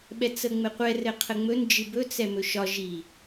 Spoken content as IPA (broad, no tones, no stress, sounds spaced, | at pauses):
ɓ ɛ t͡s ə ŋ͡m ɘ qʷ ɛ r ɘ qʰ ə ŋ͡m ɵ n d͡ʒ ɨ b ɵ t͡s ɛ m ɵ ʃ ɒ ʒ i